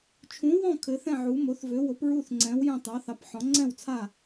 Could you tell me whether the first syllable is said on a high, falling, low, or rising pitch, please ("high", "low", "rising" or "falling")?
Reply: rising